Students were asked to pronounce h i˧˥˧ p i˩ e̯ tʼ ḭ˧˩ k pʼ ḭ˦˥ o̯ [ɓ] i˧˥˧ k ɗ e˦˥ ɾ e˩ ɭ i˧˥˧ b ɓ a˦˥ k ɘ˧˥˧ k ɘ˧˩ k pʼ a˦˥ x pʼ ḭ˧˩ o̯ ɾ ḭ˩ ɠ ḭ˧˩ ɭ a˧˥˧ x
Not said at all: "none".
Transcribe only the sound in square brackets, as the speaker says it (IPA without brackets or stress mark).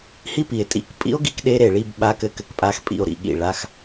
ɡ